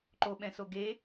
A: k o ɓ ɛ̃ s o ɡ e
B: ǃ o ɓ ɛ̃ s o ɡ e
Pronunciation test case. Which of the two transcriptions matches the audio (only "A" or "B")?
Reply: B